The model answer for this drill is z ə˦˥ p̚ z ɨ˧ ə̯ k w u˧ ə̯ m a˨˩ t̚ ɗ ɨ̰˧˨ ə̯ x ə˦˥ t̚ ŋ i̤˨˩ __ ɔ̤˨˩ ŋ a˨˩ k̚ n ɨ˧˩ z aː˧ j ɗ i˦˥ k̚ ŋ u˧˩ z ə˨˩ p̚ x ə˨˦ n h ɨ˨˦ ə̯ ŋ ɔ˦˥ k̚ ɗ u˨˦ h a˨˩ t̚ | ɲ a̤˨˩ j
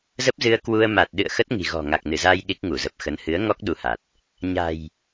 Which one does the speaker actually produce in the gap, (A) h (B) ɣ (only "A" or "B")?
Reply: B